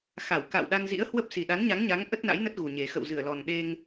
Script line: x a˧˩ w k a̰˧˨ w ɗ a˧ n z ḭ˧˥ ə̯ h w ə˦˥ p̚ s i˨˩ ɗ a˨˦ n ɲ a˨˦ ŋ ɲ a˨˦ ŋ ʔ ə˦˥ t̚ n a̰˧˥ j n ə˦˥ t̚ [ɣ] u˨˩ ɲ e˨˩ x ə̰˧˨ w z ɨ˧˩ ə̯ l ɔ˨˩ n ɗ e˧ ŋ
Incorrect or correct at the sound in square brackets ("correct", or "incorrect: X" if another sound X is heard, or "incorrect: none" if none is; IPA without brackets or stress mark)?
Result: correct